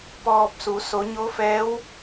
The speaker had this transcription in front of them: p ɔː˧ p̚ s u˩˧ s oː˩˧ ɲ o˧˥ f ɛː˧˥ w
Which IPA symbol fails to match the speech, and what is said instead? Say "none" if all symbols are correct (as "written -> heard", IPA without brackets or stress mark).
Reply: oː˩˧ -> o˩˧